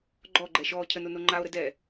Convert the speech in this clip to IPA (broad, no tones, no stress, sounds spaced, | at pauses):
ɡ͡ǃ ɔ ɡ͡ǃ ɛ ʃ ɔː cʰ ə n o n o ŋ͡ǃ a o̯ ɾ ə d ɛ